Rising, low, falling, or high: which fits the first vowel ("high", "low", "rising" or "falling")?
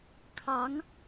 rising